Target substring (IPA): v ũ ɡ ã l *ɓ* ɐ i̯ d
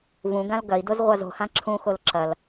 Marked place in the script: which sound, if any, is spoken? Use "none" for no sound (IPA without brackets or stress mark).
ɡ